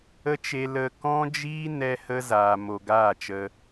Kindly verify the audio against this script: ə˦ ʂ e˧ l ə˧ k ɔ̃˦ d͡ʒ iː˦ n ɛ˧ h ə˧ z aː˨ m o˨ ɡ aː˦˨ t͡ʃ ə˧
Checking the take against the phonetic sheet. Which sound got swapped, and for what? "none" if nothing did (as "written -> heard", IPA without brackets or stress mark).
ʂ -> t͡ʃ